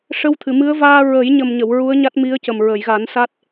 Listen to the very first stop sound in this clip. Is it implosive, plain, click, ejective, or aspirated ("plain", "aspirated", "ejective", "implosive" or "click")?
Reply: aspirated